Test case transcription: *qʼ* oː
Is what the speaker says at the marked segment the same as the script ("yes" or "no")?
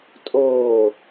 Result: no